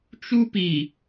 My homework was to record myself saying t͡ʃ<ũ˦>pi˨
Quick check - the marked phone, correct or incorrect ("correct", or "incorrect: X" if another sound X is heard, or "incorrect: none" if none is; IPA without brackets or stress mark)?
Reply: incorrect: u˦